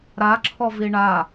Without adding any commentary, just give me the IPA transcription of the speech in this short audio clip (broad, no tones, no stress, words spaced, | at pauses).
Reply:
ɾa ǁʰɔviɳa